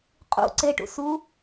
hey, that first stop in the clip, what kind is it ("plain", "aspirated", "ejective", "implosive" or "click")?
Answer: ejective